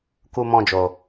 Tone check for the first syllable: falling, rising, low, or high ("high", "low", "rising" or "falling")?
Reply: high